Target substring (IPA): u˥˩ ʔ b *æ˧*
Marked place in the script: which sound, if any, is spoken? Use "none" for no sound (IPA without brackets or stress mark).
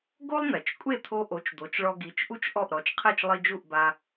a˧